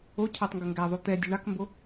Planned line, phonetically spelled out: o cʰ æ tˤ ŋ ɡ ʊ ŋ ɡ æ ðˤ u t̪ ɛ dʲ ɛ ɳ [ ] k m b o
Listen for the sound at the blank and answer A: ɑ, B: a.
A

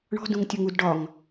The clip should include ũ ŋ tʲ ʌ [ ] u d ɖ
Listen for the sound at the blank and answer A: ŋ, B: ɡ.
A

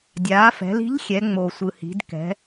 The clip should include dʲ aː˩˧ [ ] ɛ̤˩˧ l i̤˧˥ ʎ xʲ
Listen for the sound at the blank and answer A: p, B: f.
B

